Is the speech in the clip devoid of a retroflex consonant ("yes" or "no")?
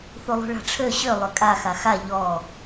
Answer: no